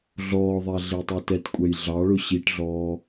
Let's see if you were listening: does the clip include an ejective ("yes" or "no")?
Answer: yes